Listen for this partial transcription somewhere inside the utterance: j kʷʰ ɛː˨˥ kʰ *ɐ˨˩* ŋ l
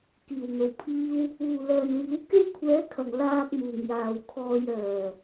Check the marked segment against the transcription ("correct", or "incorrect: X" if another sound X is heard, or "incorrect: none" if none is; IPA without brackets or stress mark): correct